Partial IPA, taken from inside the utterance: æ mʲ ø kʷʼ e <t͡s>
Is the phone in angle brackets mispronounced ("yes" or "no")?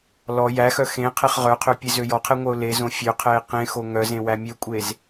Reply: yes